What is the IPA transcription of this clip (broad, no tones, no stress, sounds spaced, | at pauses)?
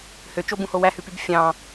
h ø t͡ʃ o b ũ h o w æ h ʉ p y b fʲ ɑ̃